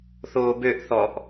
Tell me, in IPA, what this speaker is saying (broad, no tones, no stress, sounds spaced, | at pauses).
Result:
θ oː b ø ʔ θ ɔ ʔ